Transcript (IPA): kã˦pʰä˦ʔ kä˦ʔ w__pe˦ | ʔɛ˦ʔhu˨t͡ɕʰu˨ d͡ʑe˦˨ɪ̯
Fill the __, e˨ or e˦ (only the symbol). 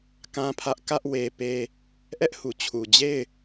e˦